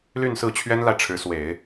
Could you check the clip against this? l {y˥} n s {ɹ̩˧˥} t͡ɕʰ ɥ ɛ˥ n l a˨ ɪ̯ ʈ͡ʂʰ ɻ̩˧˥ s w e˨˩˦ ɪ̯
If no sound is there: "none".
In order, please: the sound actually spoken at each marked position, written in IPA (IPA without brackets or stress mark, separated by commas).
y˥˧, ɹ̩˥˩